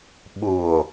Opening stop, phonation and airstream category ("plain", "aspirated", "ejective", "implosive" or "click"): implosive